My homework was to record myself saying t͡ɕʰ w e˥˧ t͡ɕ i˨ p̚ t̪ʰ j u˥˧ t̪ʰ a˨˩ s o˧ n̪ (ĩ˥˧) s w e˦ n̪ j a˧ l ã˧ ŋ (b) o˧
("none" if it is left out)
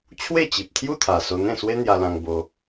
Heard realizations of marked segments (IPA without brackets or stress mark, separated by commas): ẽ˥˧, b